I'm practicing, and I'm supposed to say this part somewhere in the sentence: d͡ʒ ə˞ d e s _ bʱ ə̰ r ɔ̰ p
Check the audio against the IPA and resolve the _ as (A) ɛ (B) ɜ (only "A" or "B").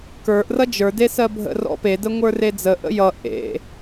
B